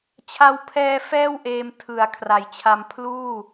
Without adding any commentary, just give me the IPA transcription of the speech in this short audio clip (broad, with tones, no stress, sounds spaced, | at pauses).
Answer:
t͡ɕʰ a˧ w pʰ ɛː˧ f ɛː˥˩ w ʔ eː˧ m tʰ ɯ˨˩ a̯ kʰ r a˩˦ j t͡ɕʰ a˧ m pʰ l uː˥˩